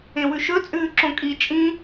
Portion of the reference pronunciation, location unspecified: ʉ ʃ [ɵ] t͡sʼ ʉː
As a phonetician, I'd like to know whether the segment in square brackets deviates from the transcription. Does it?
no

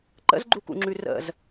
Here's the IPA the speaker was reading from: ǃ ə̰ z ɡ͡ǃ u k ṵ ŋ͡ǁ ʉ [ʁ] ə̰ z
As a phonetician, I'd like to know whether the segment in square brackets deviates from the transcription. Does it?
yes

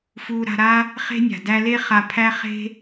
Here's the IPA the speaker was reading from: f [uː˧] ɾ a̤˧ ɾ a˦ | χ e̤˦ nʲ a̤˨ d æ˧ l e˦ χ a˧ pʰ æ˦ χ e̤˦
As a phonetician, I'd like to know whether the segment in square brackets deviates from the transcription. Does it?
no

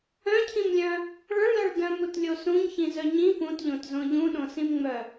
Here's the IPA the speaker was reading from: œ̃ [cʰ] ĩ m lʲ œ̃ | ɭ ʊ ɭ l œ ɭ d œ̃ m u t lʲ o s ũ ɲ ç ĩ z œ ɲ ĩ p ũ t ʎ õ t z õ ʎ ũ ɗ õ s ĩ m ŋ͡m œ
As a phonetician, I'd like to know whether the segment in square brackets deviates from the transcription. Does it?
no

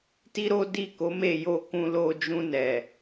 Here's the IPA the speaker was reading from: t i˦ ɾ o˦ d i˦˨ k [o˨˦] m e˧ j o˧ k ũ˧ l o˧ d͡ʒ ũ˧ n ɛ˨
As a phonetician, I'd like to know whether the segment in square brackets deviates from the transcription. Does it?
no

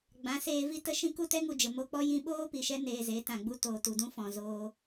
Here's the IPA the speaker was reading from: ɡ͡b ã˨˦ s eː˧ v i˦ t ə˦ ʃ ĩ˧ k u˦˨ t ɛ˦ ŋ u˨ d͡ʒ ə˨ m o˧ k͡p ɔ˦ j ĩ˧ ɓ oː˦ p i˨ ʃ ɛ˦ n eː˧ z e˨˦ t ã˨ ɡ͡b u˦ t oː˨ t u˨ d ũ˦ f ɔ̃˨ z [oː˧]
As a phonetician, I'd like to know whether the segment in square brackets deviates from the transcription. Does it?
no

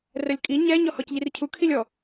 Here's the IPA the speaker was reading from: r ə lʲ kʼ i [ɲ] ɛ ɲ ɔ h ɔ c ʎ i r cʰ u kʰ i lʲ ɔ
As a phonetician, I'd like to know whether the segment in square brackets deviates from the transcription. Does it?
no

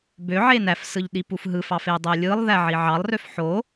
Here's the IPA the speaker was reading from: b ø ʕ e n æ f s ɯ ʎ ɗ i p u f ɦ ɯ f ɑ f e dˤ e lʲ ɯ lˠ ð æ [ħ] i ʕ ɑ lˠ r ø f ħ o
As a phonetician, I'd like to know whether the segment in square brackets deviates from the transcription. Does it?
yes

